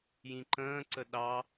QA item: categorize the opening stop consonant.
click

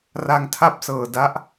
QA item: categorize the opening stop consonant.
aspirated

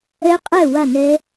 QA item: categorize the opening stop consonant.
ejective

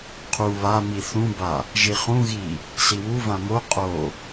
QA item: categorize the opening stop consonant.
aspirated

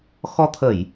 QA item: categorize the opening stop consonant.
aspirated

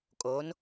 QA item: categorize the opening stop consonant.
ejective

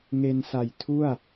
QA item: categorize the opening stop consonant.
aspirated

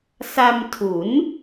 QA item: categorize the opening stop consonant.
aspirated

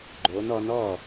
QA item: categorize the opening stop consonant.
click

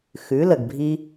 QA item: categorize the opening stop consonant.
plain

